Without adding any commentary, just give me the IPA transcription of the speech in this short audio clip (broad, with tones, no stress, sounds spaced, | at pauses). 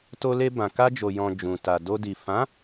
t o˧ l e˧ b ã˨ k a˧ d͡ʒ o˨ j ɔ̃˨ d͡ʒ ũ˨ t a˨ d o˧ d i˨ f ã˨˦